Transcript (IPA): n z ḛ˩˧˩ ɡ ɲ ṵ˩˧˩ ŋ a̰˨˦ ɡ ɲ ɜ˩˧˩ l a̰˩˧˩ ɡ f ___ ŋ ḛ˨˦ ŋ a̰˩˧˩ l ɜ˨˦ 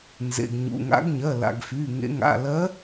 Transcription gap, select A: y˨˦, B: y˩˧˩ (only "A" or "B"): B